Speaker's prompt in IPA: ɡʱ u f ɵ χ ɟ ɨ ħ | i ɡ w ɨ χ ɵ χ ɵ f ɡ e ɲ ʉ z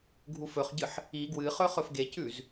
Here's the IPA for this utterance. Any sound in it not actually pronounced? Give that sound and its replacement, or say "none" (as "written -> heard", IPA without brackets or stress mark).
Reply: ɲ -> c